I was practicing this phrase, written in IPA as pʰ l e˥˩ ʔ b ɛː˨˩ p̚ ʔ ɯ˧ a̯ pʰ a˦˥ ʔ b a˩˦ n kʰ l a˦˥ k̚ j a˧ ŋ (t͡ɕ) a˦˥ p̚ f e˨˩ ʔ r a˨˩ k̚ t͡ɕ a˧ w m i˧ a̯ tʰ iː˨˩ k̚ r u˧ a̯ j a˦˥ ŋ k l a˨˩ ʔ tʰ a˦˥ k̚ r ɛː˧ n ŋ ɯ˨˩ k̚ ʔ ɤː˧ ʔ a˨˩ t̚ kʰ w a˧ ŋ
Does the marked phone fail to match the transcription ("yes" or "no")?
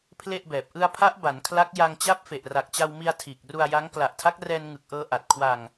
no